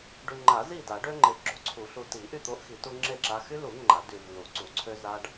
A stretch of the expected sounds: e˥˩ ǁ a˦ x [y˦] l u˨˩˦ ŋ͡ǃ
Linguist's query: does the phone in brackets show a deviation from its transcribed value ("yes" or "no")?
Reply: no